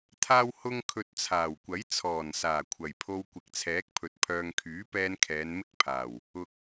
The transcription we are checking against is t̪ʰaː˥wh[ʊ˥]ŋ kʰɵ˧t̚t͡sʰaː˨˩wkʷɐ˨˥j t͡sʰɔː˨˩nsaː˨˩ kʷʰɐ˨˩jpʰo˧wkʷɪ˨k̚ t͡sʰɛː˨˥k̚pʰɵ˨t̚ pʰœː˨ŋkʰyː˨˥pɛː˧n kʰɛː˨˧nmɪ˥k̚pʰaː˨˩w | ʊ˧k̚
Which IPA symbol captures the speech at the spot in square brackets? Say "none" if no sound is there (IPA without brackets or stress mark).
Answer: ʊ˥